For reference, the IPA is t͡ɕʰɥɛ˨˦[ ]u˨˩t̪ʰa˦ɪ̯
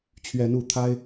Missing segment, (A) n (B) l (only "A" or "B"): A